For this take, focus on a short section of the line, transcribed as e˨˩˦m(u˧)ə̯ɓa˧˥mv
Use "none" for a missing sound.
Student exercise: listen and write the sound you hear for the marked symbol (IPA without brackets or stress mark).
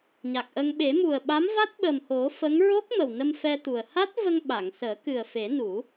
u˨˩